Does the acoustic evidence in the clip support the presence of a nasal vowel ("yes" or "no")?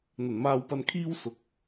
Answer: no